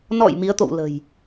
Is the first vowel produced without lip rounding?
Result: no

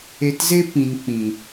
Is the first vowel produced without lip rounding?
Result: yes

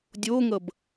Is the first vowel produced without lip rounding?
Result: no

